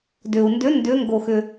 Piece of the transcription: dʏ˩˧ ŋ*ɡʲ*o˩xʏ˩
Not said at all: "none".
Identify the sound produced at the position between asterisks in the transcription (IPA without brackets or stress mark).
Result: ɡ